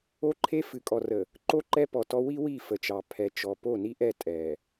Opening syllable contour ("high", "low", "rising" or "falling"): high